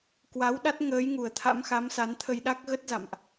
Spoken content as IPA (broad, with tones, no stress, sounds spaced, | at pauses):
k w a˨˦ w ɗ a˦˥ t̚ ŋ əː˨˦ j ŋ u˨˩ ə̯ t̪ʰ a̰˧˥ m x a˨˦ m s a˨˦ n t̪ʰ ə˧ j ɗ a˦˥ k̚ ɣ ə˦˥ t̚ z a̰˧˨ m ʔ